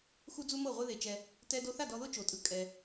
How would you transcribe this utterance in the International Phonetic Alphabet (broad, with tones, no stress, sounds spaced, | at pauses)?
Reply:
x u˦ d͡z u˦ m ɤ˦˨ ʁʷ e˦ ð e˧ t͡ʃ ɛ˧ | t ɛ˧ d o˧ θ a˦˨ d ɔ˧ ð o˦ t͡ʃ o˨ tʼ ɯ˧ kʼ ɛ˧